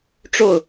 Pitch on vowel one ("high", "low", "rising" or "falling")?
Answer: falling